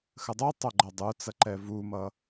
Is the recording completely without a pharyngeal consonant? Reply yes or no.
yes